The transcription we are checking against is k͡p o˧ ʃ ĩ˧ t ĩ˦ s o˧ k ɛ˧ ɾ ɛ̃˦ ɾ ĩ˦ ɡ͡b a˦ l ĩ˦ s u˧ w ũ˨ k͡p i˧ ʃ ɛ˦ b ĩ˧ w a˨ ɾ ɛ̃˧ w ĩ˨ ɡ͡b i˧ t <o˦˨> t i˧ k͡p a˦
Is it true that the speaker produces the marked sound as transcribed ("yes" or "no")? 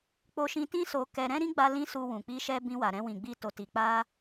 no